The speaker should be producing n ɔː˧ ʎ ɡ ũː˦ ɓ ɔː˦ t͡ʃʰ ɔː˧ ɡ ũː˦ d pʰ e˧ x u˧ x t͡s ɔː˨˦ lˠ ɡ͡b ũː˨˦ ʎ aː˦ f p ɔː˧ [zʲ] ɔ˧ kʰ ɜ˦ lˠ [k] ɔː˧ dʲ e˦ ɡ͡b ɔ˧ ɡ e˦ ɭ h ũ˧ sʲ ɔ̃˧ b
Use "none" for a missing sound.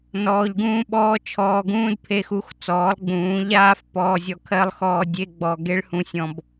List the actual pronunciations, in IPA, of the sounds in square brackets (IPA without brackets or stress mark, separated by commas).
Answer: zʲ, x